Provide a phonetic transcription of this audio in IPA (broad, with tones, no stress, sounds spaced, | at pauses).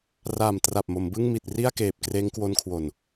r aː˨˩ m t r a˨˩ p̚ m o˩˦ m b ɯ˥˩ ŋ m i˨˩ t̚ r i˥˩ a̯ k eː˨˩ p̚ k r eː˦˥ ŋ k w o˦˥ n kʰ w o˨˩ n